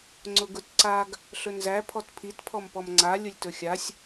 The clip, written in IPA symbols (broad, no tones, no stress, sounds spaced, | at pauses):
ŋ͡ǀ ʊ ɡ ʊ t ǀ a ɡ | ɬ ɵ n z æ pʰ ɔ t pʰ i t pʰ ɔ m p ɔ m ŋ͡ǀ a lʲ ʊ lʲ t ɵ xʲ a sʲ